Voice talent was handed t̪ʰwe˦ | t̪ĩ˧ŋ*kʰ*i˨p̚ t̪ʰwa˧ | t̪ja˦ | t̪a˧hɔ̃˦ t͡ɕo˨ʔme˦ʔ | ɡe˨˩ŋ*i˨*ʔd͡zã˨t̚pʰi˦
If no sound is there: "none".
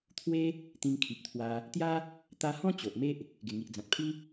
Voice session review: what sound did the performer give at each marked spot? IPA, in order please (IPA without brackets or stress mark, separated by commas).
kʰ, i˨